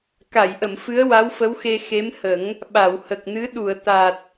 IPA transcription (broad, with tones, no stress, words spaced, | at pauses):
ka˨˩˨jʔə˨˩˨m fɨ˧˥ə̯wa˧˥wfə˧˥wxe˧ xe˧˥mhə˨˩˦ŋ | ɓa˨˩˨whə˨˩k̚nɨ˧˥ ɗu˨˩˨ə̯ t̪a˨˩t̚